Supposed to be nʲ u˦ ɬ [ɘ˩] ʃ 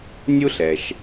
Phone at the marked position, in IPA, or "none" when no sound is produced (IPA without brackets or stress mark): ɛ˩